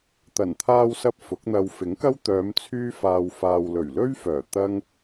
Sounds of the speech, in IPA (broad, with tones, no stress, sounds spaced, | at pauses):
t̪ ɐ˨˩ n t̪ʰ aː˧ w s ɐ˧ p̚ f ʊ˨˥ k̚ n̪ ɐ˧ w f ɪ˨˥ ŋ k ɐ˥ w t̪ œː˨˧ m t͡sʰ yː˥ f aː˧ w f aː˨ w l ɵ˨˩ ɥ l ɵ˥ ɥ f œː˨˩ t̪ ɐ˥ ŋ